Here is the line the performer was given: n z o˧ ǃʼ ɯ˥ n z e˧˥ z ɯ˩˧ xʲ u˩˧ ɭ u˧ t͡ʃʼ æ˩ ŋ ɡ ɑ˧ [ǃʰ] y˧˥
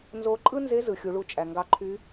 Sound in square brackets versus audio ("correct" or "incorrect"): correct